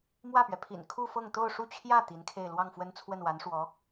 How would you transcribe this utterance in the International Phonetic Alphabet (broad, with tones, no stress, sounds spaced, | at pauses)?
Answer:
m w ä˥˩ p ɥ ɛ˩ pʰ ḭ˨˩ n kʰ u˥˧ f ɤ˥˧ ŋ t̪ o˥˧ ʊ̯ ʂ u˥˧ t͡ɕʰ j ä˥˩ t̪ i˧˥ n kʰ e˥˧ ɪ̯ l w ɑ˥˩ ŋ f w ə˥ n t͡sʰ w ə˥˩ n w a˧˥ n ʂ w ɔ˧˥